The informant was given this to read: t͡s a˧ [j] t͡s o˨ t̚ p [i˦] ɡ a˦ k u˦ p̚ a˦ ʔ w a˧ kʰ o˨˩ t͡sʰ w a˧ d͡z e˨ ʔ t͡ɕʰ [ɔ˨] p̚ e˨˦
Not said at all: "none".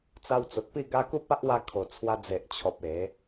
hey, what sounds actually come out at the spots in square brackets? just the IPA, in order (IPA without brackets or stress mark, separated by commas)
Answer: w, i˥˧, ɔ˨